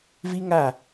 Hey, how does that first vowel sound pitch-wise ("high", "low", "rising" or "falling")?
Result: high